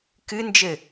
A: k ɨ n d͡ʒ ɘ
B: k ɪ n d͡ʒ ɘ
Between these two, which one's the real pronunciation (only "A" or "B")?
A